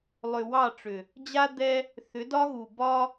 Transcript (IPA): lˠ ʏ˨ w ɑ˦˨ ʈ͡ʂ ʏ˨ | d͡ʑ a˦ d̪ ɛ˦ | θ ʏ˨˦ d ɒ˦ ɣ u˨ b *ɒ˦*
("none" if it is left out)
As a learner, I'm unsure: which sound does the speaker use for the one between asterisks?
ɒ˦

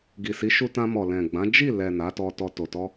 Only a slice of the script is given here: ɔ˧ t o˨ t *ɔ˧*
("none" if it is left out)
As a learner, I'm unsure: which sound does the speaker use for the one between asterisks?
ɔ˧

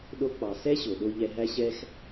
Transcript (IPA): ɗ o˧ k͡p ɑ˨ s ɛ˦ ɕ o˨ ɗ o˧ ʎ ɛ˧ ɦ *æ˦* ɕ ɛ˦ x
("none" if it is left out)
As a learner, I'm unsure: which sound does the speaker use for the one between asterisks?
æ˦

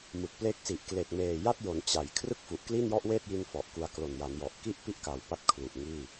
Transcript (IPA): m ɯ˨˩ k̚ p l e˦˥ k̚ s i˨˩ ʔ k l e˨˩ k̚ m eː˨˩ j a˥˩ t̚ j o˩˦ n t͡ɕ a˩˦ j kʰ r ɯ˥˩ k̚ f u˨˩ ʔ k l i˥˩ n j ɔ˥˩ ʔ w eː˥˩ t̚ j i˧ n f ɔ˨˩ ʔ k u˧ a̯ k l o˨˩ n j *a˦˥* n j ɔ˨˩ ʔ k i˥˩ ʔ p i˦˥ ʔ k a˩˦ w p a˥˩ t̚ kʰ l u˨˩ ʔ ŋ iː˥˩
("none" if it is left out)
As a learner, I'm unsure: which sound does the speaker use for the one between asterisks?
a˩˦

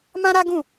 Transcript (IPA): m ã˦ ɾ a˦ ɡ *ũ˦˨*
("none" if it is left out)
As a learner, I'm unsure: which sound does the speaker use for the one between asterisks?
ũ˦˨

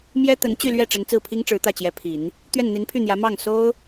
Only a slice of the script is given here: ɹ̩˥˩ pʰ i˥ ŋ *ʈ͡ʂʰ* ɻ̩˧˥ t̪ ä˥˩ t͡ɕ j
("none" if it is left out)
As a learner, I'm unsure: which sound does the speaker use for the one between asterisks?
ʈ͡ʂ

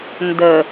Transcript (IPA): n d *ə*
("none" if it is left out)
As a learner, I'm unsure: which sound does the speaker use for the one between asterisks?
ə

